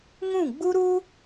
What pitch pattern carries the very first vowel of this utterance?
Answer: falling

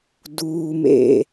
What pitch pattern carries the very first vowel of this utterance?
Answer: low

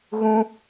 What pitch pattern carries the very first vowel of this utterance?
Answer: high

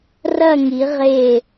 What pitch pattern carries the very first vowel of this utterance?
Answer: falling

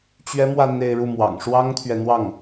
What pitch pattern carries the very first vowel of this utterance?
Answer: high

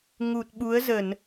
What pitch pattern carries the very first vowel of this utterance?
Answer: low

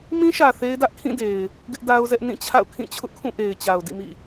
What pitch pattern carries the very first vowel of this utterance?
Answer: high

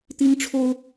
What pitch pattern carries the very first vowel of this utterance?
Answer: high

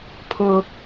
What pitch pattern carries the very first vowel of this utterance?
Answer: low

